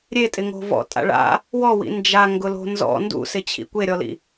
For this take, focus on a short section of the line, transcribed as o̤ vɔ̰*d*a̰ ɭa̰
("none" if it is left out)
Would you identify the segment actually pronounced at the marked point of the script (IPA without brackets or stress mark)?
tʼ